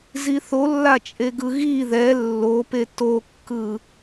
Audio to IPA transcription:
ziθolːat͡ʃʼe ɡɯɣi ðɛ lːope tokːɯ

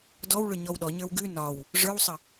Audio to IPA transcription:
dɔwɭʏ ɲɔwɗɔɲə˞w ɡʉ nɒw | ʐə˞wsˤə

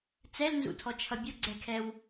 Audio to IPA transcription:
t͡sɛlnzṵtʰɔt͡ʃʰʌ bʲʊɡ͡ǀɛkʰɛw

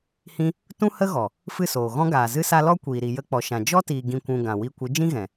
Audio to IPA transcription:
hĩ˦ | tũ˦hə˦ɣɔ˨ | fɨ˦˨soː˨ ɣɔ̃˦ɡaː˨zɨ˦sa˦ lɔ˦kʷiː˨ ɾi˨jə˧k͡pɔ˨ʃã˨ d͡ʒɔ˦tiː˨ ɡĩ˨kʷũ˨ ɡã˨wi˧kʷɨ˨˦ d͡ʒĩ˦ɣɛ̃˨

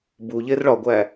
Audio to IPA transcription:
bu ʎerɭɒɡʷæ

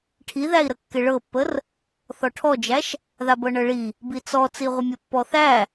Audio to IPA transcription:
ʈʰiðæi̯ɾəkːɪ ɭɤpːər | θɔʈʰɔd͡ʒæʃ | ðabɤɳɤɭi | bit͡sɔ t͡siʁʷəmʲə pːɔθæ

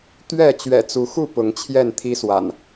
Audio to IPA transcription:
t̪ɥɛ˥˨ t͡ɕɥɛ̰˨˩t͡su˨˦xu˥˨ pʊ˨˦ŋt͡ɕʰjɛ˥˨nt̪ʰi˦swa̰˨˩n

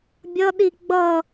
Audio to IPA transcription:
bʲʌɗi ɡ͡bʌ

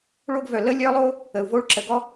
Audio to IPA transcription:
ɭo˥ɡvœ˩ lə˥lʲœ˥lˠo˥ | ə˩u̯vo˥ɭǁə˩ ɡɔ˥

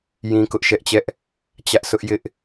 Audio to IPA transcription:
jĩ˦kʊ˦ʔʃɛ˦ʔt͡ɕɛ˦ʔ | t͡ɕä˦ʔsʰʊ˦ʔjɪ˦ʔ

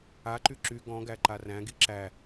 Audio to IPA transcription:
aǃy ǁy ɡɔ̃ɡæ ǃaræ̃ɡi ǁæ

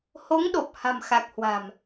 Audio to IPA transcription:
ho˨˦ŋɗo˨˩p̚ ha̤˨˩mxa˨˩k̚ hwa̤˨˩m

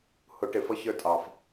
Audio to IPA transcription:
hʊ˧˩˧ʈɪ˧˩˧fʌ˨˥ çə˞˦tʼɑ˨˩f

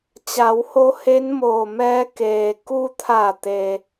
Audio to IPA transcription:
t͡ɕa˩˧who˧ he˧˥n moː˧˩mɛː˧ keː˩ku˧t̪ʰa˧˩t̪e˩

